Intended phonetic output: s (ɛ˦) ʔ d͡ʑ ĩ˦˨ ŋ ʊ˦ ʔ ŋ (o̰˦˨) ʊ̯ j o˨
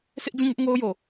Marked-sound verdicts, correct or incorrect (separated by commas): incorrect, incorrect